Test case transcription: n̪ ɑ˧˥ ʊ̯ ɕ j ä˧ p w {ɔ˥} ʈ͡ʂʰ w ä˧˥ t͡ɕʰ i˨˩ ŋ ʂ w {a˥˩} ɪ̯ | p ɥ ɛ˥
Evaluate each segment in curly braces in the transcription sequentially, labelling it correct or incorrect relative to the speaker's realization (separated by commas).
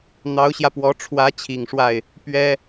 incorrect, correct